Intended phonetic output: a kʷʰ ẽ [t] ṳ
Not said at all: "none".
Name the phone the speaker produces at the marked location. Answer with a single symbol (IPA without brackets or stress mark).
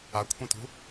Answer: t